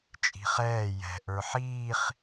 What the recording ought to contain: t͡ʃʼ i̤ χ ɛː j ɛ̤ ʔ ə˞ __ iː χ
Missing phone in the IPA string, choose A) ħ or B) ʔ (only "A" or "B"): A